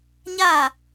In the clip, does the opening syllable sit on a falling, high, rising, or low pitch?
falling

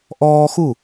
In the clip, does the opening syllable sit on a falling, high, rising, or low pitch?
high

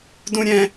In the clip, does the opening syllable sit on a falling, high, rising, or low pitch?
high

